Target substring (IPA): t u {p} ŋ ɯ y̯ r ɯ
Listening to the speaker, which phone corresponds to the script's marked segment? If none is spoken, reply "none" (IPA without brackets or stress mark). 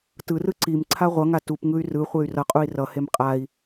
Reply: p